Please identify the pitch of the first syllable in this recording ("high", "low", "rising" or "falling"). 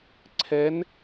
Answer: rising